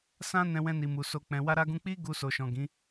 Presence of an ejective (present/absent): absent